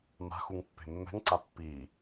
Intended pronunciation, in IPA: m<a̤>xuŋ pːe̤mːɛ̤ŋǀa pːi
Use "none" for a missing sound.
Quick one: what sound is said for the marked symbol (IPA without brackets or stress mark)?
a̤